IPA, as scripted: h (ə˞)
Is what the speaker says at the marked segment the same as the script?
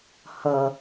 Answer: no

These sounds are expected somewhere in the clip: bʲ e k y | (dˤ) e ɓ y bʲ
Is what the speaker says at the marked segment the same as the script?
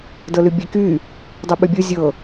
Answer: yes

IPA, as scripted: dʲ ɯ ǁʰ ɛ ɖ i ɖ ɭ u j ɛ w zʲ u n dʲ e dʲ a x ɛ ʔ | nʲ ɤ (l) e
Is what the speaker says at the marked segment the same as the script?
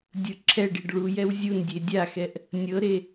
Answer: no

